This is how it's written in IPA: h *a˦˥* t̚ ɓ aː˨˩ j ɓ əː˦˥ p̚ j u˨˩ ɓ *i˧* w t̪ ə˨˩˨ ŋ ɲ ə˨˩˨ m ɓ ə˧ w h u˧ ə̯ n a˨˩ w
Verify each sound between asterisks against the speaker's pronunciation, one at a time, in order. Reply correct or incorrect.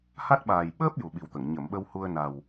correct, incorrect: i˨˩

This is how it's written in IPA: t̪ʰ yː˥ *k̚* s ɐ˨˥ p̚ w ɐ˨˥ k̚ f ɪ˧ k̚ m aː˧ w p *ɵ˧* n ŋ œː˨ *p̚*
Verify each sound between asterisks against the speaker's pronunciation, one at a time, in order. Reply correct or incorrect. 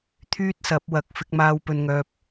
incorrect: t̚, incorrect: ɵ˨, correct

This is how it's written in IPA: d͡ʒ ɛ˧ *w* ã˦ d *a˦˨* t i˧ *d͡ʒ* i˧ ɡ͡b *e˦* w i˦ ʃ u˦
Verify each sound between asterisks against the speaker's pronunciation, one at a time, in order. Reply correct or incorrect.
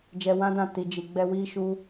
correct, incorrect: ã˦˨, correct, incorrect: ɛ˦

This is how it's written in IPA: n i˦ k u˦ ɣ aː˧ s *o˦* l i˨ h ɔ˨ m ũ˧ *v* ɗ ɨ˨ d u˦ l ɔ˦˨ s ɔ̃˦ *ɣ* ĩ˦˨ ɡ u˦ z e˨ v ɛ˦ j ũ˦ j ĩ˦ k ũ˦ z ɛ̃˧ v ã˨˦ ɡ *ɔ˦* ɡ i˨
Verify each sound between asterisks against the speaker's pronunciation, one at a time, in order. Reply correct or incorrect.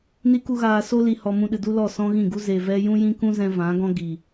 correct, incorrect: none, correct, incorrect: ɔ̃˦

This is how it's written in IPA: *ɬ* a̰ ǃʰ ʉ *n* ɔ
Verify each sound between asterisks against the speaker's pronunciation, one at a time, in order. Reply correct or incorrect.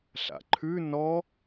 correct, correct

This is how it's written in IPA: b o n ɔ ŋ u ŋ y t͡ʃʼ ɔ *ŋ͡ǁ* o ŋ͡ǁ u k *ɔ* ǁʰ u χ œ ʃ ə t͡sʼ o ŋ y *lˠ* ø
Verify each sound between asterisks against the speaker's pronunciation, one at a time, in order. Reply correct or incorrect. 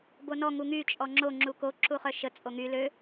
correct, incorrect: o, incorrect: l

